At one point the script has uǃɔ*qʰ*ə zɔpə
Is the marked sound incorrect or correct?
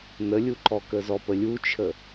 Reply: incorrect